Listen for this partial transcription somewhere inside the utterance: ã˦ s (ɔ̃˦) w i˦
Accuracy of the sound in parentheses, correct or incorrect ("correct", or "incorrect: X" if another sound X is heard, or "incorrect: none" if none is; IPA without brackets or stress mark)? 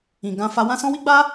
correct